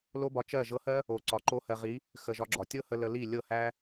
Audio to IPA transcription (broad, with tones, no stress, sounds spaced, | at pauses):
l o˦ b ɒ˧ t͡ʃ ɜ˦˨ ʒ ɤ˧ h ɜ˦ | o˨ ǀ ɒ˨ ǃ o˧ h ɜ˨ ʁ i˨˦ | x ə˨ ʒ ɒ˧ ɡ͡ǁ ɒ˨ tʲ ɤ˦ h ə˧ l ə˧ l i˦˨ lʲ ɤ˦˨ h æ˦